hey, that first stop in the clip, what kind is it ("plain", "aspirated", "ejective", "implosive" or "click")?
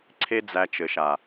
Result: click